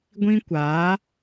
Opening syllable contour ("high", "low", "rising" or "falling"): high